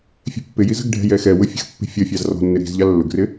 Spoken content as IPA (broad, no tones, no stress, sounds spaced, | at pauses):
fʲ ɛ̤ pː ɪ j i z ə̤ ɡ ɖʱ ɛ̤ j ɛ x ɛ w ʊ fʲ ə̤ x pː i̤ fʲ ʌ fʲ ɑ z r ɔ̤ nː ɪ ɾ i̤ z ʎ ɑ lː ʊ ɡ r ɪ